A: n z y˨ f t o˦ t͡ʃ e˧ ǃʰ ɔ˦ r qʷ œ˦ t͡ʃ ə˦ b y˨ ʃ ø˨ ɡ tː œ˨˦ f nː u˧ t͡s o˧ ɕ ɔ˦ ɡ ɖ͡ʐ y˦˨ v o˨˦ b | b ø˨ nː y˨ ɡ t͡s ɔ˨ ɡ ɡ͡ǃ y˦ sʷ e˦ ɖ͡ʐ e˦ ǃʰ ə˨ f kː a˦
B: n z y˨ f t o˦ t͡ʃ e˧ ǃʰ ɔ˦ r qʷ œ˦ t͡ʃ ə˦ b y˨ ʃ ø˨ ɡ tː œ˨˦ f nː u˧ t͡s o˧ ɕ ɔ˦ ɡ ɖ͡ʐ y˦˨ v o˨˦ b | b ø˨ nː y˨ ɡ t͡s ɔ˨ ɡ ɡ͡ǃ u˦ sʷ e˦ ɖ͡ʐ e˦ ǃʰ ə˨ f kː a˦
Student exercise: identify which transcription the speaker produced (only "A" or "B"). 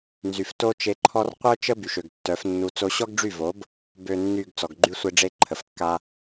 A